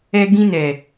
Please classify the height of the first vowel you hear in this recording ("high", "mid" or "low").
mid